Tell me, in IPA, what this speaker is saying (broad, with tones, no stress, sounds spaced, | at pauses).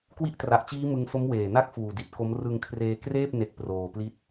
k w i˦˥ ʔ t r a˨˩ ʔ t͡ɕ iː˦˥ m ɯ˧ ŋ s o˦˥ m w eː˨˩ n a˥˩ k̚ f uː˨˩ d i˨˩ t̚ k o˦˥ m r ɯ˧ ŋ kʰ r eː˧ k r eː˥˩ p̚ n e˦˥ k̚ p r oː˧ p l i˥˩ t̚